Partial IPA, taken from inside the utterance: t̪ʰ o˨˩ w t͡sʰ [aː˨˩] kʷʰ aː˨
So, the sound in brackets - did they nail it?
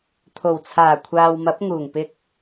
yes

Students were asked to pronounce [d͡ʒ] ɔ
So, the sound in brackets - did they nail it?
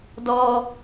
no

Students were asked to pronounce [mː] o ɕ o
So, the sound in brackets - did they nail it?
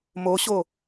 no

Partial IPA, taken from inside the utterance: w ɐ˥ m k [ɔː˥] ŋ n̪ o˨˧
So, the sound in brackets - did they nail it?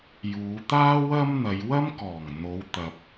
no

